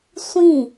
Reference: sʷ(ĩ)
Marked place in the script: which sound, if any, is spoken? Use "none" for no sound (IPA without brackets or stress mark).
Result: ĩ